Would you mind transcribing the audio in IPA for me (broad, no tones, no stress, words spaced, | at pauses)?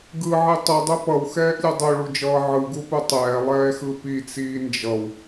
ɡɯʕi tˤudˤu pʌwxɛːʔlʲe dˤoɭud͡ʒʌː ʕɯɡupu tˤɛːlˠɛːxɯ pit͡siː nd͡ʒʌw